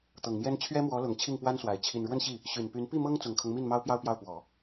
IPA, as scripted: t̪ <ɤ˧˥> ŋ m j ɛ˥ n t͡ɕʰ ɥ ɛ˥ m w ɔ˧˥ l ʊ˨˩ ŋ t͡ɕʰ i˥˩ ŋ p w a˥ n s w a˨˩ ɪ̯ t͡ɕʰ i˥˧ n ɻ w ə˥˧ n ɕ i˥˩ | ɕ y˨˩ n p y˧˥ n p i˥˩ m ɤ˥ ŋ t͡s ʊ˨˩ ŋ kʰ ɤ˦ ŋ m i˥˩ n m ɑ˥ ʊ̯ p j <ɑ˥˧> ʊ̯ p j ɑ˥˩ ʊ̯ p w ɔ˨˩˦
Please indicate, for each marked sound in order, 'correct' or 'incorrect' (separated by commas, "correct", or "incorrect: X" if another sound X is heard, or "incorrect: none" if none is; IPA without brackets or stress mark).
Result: incorrect: ɤ˨˩, correct